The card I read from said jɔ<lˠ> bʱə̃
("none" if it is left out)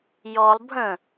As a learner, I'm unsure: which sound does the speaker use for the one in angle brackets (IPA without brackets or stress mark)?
lˠ